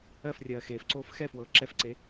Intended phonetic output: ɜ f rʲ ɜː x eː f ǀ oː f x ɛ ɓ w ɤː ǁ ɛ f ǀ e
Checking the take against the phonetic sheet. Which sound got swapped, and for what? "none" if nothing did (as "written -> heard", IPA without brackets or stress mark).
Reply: ɓ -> f